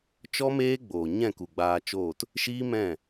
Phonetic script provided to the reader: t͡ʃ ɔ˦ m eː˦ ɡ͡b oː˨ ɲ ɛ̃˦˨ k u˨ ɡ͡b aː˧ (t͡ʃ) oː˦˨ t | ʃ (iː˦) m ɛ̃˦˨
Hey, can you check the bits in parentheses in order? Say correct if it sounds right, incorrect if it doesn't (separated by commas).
correct, correct